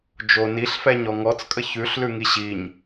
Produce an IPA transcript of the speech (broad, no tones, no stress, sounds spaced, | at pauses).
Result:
d͡ʒ o n i ɬ f ɛ ɲ ɔ ŋ ɔ t͡s kʼ ə ç ʉ ɬ l ʉ ŋ i ɕ i ɲ